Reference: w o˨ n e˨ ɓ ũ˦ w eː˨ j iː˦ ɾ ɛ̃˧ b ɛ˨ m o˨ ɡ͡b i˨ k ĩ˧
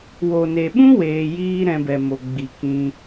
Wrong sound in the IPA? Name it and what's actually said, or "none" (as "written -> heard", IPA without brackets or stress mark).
eː˨ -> eː˧